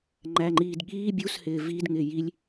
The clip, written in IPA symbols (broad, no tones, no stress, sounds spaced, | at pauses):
ŋ͡ǃ æ ŋ͡ǃ iː d ɠ iː bʲ u s h ɪː v i d ŋ ɪ j i lʲ